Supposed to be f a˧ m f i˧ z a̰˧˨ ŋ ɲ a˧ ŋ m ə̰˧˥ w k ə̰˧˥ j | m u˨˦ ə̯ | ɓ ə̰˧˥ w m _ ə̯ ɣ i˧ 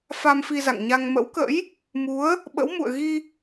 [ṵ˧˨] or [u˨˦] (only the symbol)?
ṵ˧˨